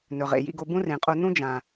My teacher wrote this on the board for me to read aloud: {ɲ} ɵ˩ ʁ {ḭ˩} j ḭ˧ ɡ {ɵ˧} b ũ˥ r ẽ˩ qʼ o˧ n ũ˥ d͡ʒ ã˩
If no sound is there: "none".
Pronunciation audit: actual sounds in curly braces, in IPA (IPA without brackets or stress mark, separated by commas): n, ḛ˩, o˧